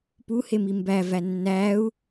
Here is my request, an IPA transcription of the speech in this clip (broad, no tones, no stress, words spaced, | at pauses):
puhemi mbævæ nːæu̯